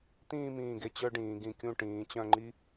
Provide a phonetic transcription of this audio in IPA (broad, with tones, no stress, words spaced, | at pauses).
t̪ĩː˥˧mĩː˧˩ɡe˧ t͡ɕœ˥ɖĩː˩˧ɡĩ˧kʲũ˥˧ ʈĩː˩˧t͡ɕœ̃˥˧ŋ͡ǃi˥